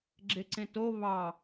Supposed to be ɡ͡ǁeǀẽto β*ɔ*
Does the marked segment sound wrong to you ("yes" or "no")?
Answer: yes